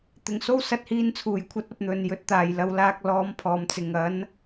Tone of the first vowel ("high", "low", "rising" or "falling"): low